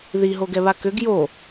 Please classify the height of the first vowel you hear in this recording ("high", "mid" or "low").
high